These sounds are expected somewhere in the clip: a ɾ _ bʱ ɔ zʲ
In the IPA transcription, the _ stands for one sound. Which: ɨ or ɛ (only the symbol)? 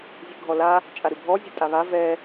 ɨ